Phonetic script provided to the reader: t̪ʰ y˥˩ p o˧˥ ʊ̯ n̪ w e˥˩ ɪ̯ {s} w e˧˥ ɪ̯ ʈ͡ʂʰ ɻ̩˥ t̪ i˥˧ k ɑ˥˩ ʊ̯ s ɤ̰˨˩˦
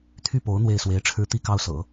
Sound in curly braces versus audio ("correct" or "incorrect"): correct